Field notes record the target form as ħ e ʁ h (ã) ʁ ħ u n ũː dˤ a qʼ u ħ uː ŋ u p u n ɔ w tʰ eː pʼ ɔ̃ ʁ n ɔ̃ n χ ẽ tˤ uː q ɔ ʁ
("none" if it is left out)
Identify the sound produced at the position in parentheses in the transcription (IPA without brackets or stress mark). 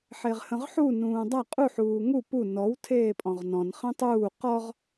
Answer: ə̃